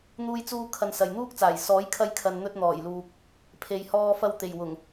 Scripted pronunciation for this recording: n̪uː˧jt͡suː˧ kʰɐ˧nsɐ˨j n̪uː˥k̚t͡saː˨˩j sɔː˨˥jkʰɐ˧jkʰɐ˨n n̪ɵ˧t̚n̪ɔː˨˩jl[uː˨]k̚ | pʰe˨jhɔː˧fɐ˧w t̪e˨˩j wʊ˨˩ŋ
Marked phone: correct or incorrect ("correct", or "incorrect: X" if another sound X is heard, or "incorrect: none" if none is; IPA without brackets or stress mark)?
correct